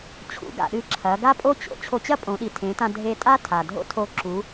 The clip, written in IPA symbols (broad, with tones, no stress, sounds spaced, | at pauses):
t͡ɕʰ ṵ˩˧ ɡ a̰˩ ɗ ɨ˧ ǁʰ ɐ˩˧ ɡ a˥ pʼ o˥ t͡ɕ o̰˩˧ t͡ɕʰ o˧ t͡ɕ ɐ˥ pʼ õ˩˧ ɗ i˩ tʰ ẽ˩˧ t ã˧ dʱ e˧ tʼ a˥ tʰ a˩ dʱ o̰˥ tʰ o˧˥ ǁ u˩˧